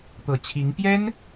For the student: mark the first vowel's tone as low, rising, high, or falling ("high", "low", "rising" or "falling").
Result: low